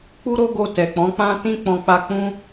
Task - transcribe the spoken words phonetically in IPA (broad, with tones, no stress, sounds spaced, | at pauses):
k͡p u˦ ɾ o˦ ɡ o˧ t ɛ˨ k͡p ɔ̃˨˦ k͡p ã˦ t ĩ˦ k͡p ɔ̃˧ k͡p a˧ k͡p ũ˦